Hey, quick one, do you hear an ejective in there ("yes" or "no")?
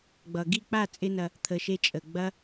yes